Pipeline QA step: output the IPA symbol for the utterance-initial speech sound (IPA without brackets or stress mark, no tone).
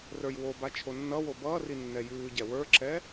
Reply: r